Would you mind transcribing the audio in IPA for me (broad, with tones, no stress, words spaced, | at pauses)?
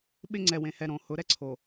ɓɪ˦ ŋ͡ǀɛ˨wẽ˨hɛ˨ ɾõ˨ hʊ˨˦ɾɛ˦ǀʰo˨